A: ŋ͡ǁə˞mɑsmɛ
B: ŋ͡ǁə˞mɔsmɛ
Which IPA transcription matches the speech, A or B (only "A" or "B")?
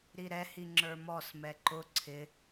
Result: B